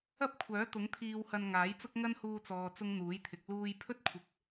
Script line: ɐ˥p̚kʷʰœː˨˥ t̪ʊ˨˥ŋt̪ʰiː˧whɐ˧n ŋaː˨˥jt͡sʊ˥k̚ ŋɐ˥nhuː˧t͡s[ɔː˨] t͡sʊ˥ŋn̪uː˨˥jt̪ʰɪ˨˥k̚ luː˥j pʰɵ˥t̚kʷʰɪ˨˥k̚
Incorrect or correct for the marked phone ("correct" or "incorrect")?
correct